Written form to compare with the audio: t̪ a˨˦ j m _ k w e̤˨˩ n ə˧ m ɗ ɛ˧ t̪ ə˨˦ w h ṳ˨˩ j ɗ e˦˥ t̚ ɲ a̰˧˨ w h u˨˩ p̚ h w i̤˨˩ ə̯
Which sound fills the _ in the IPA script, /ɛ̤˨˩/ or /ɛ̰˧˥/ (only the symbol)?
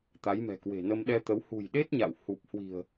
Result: ɛ̤˨˩